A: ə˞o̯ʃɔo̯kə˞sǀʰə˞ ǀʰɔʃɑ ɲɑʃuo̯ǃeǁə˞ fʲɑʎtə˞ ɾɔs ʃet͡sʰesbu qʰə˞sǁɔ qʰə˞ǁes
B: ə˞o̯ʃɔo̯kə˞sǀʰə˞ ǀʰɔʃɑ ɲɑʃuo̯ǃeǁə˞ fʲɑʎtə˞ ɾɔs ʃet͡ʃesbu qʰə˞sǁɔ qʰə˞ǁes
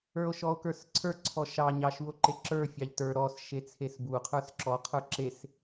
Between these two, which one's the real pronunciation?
A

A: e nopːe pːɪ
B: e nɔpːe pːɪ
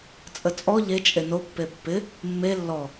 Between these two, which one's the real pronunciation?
A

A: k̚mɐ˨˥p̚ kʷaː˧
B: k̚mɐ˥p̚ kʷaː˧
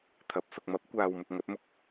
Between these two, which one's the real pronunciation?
A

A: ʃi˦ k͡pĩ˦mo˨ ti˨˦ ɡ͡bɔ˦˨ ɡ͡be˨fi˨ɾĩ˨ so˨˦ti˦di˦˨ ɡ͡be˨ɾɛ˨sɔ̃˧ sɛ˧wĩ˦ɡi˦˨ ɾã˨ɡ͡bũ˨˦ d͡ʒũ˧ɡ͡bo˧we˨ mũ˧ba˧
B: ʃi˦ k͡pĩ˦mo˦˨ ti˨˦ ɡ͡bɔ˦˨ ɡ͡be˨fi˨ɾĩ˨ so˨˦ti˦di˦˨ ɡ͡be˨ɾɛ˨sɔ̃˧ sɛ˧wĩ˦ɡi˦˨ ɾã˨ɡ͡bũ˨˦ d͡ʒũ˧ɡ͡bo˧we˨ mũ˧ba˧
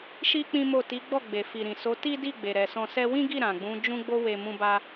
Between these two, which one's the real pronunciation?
B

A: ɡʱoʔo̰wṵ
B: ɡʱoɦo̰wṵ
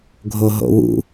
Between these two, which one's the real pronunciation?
B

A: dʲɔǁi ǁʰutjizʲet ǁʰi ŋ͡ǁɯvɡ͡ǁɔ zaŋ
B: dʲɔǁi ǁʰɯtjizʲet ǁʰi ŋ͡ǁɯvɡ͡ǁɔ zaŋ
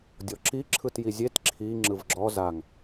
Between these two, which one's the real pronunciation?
B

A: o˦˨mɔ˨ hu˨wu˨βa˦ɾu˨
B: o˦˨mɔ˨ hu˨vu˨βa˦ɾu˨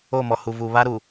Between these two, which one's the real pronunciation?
B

